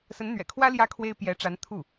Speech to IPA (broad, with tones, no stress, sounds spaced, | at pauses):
s ə˧˥ n n̪ ɥ ɛ̰˨˩ kʰ w ä˥ l j ä˥ kʰ w e˥ ɪ̯ p j ɛ˧˥ ʈ͡ʂ a˧˥ n t̪ʰ u˥˩